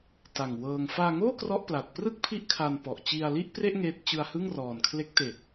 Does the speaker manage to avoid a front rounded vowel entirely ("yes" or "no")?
yes